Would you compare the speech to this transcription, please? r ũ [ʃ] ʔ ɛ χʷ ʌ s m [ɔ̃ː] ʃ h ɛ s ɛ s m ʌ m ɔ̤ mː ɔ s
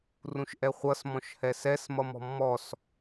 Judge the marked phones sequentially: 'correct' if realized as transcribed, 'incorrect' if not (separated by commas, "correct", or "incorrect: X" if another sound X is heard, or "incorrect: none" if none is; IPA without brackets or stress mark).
correct, incorrect: ɔ̃